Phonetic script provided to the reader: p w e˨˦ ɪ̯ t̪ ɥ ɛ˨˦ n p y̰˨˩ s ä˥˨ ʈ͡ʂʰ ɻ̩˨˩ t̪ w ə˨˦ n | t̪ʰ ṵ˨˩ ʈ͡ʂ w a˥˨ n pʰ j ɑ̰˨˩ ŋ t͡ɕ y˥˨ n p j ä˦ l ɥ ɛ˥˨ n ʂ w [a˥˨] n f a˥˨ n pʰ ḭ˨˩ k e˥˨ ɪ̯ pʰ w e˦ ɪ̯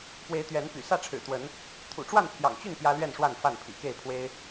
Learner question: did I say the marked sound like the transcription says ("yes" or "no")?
yes